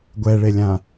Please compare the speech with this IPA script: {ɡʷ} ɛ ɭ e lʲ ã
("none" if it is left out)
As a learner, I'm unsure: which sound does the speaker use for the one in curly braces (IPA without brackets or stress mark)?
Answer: ɡʷ